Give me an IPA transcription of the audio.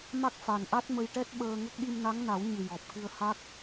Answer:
m a˦˥ k̚ f a˨˩ n ʔ a˦˥ t̚ m ə˧ j ʈ ɛ˦˥ t̚ ɓ əː˧ ŋ ə˦˥ k̚ ɗ i˧ m n a˧˥ ŋ n a˨˩˦ w ɲ ɨ˨˩ j ɔ˨˩ p̚ k ɨ˧ ə̯ h a˦˥ k̚

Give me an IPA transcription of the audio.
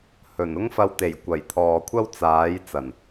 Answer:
h ɵ˨˩ n ʊ˥ ŋ f ɐ˧ w t̪ e˨˩ j kʷ ɐ˨˩ j t̪ʰ ɔː˨ kʷʰ ɐ˥ w t͡s aː˨˥ j t͡s ɐ˨˩ n

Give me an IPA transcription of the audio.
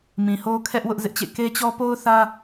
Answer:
m ĩ˨ h o˦ kʰ ɛ˦ ʔ w ʊ˦ ʔ z ɪ˦ ʔ t͡ɕ ḛ˦˨ k e˦ t͡ɕ ɔ˦ p o˦ ʊ̯ θ ä˦

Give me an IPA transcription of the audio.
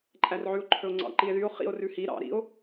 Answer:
ǃʼ æ r ʕ ʉ o̯ ǃʰ ɵ o̯ ŋ͡ǀ ɑ̰ ǃ i e̯ ð y o̯ χ ḭ o̯ r ʉ h i ɾ ɑ̰ ɾ ḭ o̯

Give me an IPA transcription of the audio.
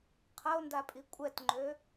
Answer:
qʰ ɐ o̯ n d a pʼ i kʷʼ ɛ t ŋ͡ǃ ø

